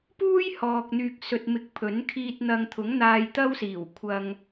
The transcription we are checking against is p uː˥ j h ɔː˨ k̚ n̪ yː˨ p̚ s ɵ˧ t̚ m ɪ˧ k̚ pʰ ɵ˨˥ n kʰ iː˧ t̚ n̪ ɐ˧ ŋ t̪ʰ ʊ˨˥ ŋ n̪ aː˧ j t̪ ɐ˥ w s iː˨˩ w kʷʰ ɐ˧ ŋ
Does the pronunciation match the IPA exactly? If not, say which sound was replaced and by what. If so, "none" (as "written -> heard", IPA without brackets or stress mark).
p̚ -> k̚